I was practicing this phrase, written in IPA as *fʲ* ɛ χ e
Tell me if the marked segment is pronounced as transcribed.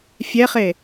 yes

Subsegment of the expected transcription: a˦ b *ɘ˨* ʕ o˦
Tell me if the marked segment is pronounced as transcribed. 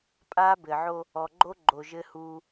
yes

